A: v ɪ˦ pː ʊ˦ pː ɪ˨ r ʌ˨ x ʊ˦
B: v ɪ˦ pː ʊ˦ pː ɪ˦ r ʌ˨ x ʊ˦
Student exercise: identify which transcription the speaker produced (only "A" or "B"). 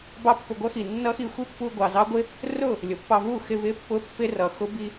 B